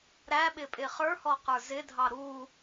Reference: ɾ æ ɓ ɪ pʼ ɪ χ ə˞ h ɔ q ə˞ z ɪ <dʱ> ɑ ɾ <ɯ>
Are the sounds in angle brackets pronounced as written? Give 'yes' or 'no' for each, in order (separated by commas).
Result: yes, no